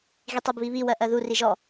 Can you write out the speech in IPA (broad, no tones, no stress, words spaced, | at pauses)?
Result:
ɣitˤɜbβiβi wɜʔɜðu riʒɔ